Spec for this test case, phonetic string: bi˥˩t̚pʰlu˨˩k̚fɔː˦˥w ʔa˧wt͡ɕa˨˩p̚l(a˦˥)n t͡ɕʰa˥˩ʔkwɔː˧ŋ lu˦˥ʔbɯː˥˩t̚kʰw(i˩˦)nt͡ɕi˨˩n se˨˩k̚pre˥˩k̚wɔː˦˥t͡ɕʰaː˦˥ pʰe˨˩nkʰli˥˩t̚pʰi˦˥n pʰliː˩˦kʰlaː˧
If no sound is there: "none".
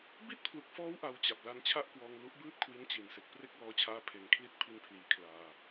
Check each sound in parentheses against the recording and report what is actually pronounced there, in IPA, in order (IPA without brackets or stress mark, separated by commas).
a˦˥, i˦˥